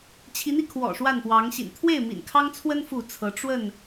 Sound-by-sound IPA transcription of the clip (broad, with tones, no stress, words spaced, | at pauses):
t͡ɕʰi˨˦n̪i˧ kʰwɔ̰˨˩ʂwa˥˨npwɑ˨˦ŋɕḭ˨˩n t̪ʰwe˥˨ɪ̯mḭ˨˩nkʰɑ˦ŋt͡sʰwə˦n fu˥˨t͡sʰɤ˨˦ ʈ͡ʂwə˥˨n